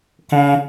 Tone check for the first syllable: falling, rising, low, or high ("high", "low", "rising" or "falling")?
high